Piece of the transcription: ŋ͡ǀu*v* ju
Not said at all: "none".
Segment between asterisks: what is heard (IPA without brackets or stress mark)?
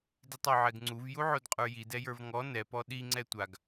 v